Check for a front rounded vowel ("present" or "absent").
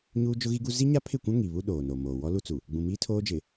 absent